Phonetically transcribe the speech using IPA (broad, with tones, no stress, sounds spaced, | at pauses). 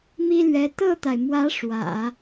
m i˥ l ɥ ɛ˧˥ t̪ ɤ˥˩ t̪ a˩ ɪ̯ m w ä˧˥ ʂ w ä̰˨˩˦